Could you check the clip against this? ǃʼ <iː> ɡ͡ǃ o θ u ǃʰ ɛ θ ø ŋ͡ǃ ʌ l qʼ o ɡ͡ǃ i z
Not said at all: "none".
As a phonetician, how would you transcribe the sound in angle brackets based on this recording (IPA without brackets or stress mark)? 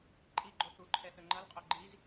i